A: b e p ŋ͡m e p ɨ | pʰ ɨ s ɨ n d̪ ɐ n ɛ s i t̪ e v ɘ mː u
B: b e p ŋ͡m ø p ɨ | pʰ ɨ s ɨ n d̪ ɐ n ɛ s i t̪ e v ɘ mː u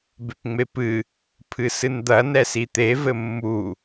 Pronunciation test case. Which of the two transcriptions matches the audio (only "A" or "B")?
A